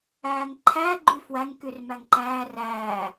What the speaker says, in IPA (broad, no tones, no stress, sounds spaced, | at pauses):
æː ŋ ǃʰ æ ɡ͡ǃ y f w æ ŋ k y r m æ ŋ ǃ æː r æː